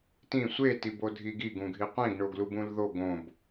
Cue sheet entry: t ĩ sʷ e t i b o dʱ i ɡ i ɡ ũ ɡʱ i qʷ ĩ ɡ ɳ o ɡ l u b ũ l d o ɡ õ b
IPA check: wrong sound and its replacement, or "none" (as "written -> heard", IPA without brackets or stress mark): d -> ð